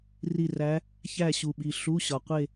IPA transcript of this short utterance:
r i˦˨ r æ˧˥ | ç æ˦˨ ɕ u˨ ɓ i˨ ɬ u˧˥˧ ɕ ɒ˨ qʷ e˦˨

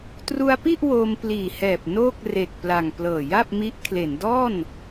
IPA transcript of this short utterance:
t r u˧ a̯ p i˥˩ ʔ w oː˧ m p l iː˨˩ h ɛː˨˩ p̚ n oː˥˩ k̚ r e˨˩ k̚ p l a˨˩ ŋ p l ɤː˨˩ j a˥˩ p̚ m i˦˥ ʔ kʰ l e˩˦ n d ɔː˥˩ n

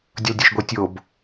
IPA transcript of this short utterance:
dʲ ʌ l dʲ o ʃ ɡʷ ʌ tʲ o b

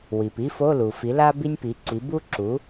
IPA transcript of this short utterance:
w i˩ p i˥ f o˧˥˧ l u˩ f i˩˥ l a˥ b i˥ nʲ p i˩˥ ǀ i˩˥ b u˥ ǁ u˩˥

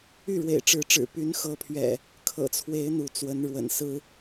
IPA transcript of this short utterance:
y˥˨ ɻ w ḛ˨˩ ɪ̯ ʈ͡ʂ ɻ̩˨˦ ʈ͡ʂ ɻ̩˨˩ p y˨˦ n x ɤ˨˦ pʰ ɥ ɛ̰˨˩ | kʰ ɤ̰˨˩ t͡sʰ w e˨˦ ɪ̯ n̪ u˨˦ t͡s w ə˨˦ n ɻ w ə̰˨˩ n s ɹ̩˦

